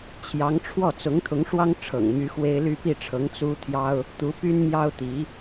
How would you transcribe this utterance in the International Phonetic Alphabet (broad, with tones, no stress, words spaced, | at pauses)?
t͡ɕʰjɑ˧˥ŋ ʈ͡ʂʰwɔ˥˩ t͡sʊ˧˥ŋt̪ʰʊ˧˥ŋ ʂwɑ˥ŋʈ͡ʂʰɤ̰˨˩ŋmy˧˥ xwe˥ɪ̯ ly˥˧pi˥˩ʈ͡ʂʰɤ˧˥ŋ t͡su˥ t̪ʰjɑ˥ʊ̯ | t̪u˧˥ py˥nmjɑ˥ʊ̯t̪i˧˥